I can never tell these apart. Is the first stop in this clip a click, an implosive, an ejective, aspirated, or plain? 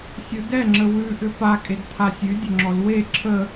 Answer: plain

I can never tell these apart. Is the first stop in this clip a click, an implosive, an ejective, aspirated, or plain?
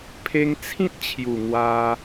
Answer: aspirated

